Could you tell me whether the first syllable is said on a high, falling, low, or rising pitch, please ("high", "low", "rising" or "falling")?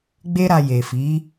high